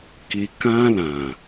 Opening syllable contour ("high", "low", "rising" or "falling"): low